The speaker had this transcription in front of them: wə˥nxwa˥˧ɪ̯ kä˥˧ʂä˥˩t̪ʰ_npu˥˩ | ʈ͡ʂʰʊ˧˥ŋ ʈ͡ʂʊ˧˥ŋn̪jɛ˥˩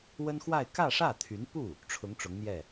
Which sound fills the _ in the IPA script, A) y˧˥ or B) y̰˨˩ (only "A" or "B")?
A